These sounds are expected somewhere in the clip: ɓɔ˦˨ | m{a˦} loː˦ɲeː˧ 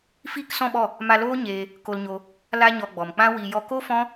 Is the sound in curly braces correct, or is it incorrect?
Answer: incorrect